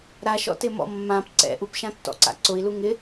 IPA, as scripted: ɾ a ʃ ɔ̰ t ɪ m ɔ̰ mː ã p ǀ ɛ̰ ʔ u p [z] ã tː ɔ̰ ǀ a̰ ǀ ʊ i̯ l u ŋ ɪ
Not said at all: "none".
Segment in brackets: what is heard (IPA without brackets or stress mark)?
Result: ʃ